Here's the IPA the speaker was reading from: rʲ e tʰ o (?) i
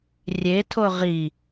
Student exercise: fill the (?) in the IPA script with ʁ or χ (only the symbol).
ʁ